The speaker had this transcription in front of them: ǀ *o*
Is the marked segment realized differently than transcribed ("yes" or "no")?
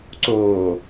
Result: yes